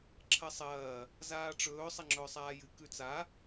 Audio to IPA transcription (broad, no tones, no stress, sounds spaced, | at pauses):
ǁʰ ɐ sˤ ɐː | z aː ʈ͡ʂ ɵː sˤ ɐ ŋ͡ǁ ɵː sˤ aː j ɨ k ʉ t͡s a